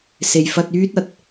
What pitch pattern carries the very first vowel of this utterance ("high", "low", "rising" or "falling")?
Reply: low